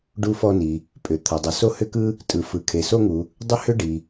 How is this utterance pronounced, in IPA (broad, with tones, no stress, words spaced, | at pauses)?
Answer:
ɖu˥fɔ˥ni˩ | pʼʏ˩t̪ʰʌ˩ dˤʏ˩so˥ hʏ˥kɯ˥ | tʼɯ˩fɯ˩ kʰe˩so˥ŋu˩ | dˤʏ˥hʏ˥ɖi˩